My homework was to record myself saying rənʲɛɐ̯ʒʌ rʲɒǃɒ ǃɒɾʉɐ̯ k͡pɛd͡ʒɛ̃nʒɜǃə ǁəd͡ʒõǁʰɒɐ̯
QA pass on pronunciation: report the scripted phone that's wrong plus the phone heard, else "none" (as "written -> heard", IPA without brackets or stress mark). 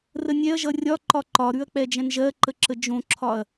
none